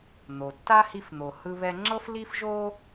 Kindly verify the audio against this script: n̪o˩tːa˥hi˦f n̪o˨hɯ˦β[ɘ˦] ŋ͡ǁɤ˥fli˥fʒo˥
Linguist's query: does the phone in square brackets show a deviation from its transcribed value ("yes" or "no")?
yes